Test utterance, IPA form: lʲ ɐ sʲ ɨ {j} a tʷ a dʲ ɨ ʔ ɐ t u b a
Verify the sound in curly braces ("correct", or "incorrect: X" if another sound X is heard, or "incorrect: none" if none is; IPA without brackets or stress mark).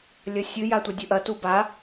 correct